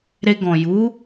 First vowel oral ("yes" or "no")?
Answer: yes